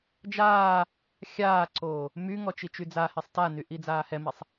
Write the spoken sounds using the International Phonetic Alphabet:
d͡ʒ aː | xʲ aː ǀ oː | m y ŋ ɔ t͡ʃ i t͡ʃ y d͡z a h e sˤ t a n y ʔ i d͡z aː h ɛ m i sˤ

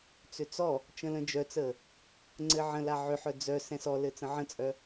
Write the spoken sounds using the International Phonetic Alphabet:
t͡s ʏ t͡s ɔ | t͡ʃ ə̃ l ə̃ d͡ʒ œ t͡s ə | ŋ͡ǀ ɘ ʕ ə̃ l a ʕ ʏ ħ œ d͡z œ s ɛ̃ s ɔ l ɘ t͡s ə̃ ʕ ə̃ t͡sʼ œ

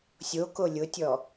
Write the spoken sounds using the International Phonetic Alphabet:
sʲ o k o lʲ ʊ tʲ ɔ

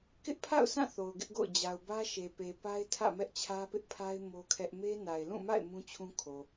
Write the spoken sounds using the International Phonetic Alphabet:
k ɪ˦ ʔ pʰ a̰˦˨ ʊ̯ sʰ ã˦˨ θ o˨ ʊ̯ ɡ ɪ˦ ʔ ɡ o̰˦˨ ʊ̯ d͡ʑ a˨ ʊ̯ b ä˦ ʃ e˨ p e˨ p a˦ ɪ̯ tʰ ä̰˦˨ m ɛ˦ ʔ t͡ɕʰ ä˦ p ɪ˦ ʔ pʰ a˦ ɪ̯ m o˦ kʰ ɛ˦ ʔ m e˦ n a˨ ɪ̯ l ũ˦˨ m a̰˦˨ ɪ̯ m ũ˦ t͡ɕʰ ũ˦ kʰ o˨

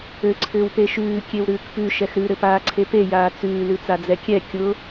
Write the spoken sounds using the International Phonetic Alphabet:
ɘ ǀʰ ʏː w p e ʃ ʉː kʲ e w ɾ ʉː k p ʉ ʃ ɛ x ɾ ʉ ɾ ɘ p aː ǀʰ e p e j aː t͡s ʉː l ʉ t͡s a d͡z ɛ kʲ ɛ kʲ ʊ

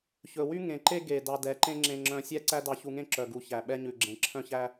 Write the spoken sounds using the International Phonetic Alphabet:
ç ɵ˨ w y˦ ŋ ẽ˨ ǃ e˦ ɡ e˨ d ɑ˧ d ɛ˨˦ ǃ ẽ˦ ŋ͡ǁ ẽ˧ ŋ͡ǁ œ̃˧ sʲ ɛ˦ ǀ æ˦ d ɑ˧ ç u˧ ŋ ẽ˦ ǁ œ˨ ɡ u˨ ç æ˨ ɓ ɛ˧ ɲ ʉ˨ ɡ͡ǁ ẽ˨ ǁʰ œ̃˦ ç æ˦

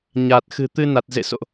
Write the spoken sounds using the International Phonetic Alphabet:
ɲ aː˨˩ t̚ x ɨ̤˨˩ t̪ ɨ˧ n a˨˩ t̚ z ḛ˧˨ s o̰˧˨ ʔ

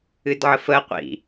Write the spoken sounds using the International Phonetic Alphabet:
ɨ d ʕ ə f ə qʷ ḭ

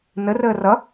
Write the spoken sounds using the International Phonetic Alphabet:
n ə r əː r ʌ

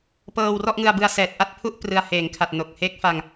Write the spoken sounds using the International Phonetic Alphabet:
p ɤː˧ w r ɔ˥˩ ʔ ŋ ɯ˧ a̯ b ɯ˧ a̯ s ɛː˨˩ t̚ ʔ a˥˩ t̚ pʰ u˥˩ ʔ p r ɯ˧ a̯ h eː˩˦ ŋ kʰ a˨˩ t̚ n o˨˩ k̚ h e˦˥ k̚ f a˧ ŋ

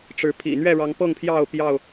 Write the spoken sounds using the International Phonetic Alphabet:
ʈ͡ʂ ɻ̩˨˦ pʰ ḭ˨˩ n̪ ɥ ɛ˥˨ ɻ ɑ˨˦ ŋ p ɤ˥˨ ŋ pʰ j ɑ˥˨ ʊ̯ p j ɑ˥˨ ʊ̯

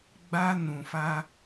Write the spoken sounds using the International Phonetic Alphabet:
ɡ͡b a˧ n ũ˨ f a˧

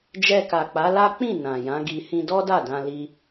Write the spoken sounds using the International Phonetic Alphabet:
d͡ʒ ɛ˧ k a˨ k͡p a˨˦ l a˦ k͡p ĩ˦˨ n ã˨ j ã˨˦ ɡ i˧ h ĩ˧ d ɔ˦ d a˦˨ d ã˧ l i˧

